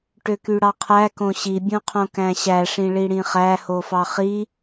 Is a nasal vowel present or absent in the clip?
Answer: present